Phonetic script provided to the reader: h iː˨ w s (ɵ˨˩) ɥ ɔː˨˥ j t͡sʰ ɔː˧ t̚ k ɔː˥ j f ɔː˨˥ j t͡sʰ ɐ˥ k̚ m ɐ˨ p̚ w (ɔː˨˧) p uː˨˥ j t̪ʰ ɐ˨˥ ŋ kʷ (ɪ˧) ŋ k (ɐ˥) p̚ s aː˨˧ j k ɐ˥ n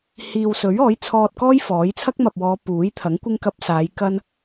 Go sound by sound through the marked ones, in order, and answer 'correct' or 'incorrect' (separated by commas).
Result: incorrect, correct, incorrect, incorrect